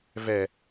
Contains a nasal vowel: no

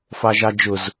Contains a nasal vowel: no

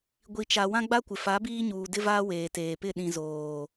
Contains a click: no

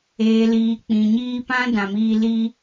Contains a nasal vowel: yes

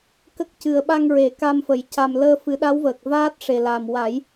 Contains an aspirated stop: no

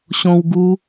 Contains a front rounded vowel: no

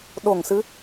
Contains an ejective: no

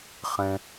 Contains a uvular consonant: yes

